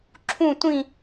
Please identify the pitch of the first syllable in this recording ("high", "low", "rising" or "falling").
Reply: falling